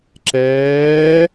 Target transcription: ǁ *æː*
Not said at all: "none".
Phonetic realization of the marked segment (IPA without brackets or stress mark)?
ɛː